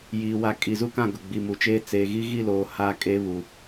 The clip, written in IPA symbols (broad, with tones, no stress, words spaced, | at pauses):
jiː˨wa˨ kʼi˨zu˦kã˦˨ ɡʊ˨ɡ͡bi˨mu˨t͡ʃeː˦ t͡seː˨ɣi˦ ɣi˦˨loː˨ ha˦kʼe˦ βu˨